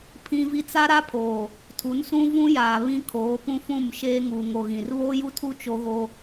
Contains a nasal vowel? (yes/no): yes